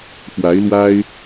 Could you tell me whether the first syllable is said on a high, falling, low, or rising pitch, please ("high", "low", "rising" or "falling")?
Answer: rising